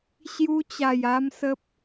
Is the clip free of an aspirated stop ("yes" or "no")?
yes